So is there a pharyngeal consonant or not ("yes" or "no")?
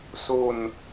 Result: no